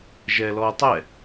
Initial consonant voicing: voiced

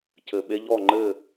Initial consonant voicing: voiceless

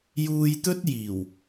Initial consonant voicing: voiced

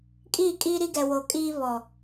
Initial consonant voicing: voiceless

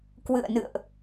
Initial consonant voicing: voiceless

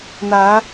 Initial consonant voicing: voiced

